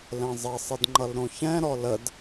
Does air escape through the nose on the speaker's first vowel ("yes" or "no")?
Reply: yes